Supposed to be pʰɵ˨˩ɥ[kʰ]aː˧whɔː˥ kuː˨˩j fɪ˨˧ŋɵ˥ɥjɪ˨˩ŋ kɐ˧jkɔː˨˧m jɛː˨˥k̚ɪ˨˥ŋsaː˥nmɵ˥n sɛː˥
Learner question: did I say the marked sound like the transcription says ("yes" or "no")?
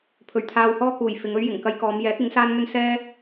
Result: no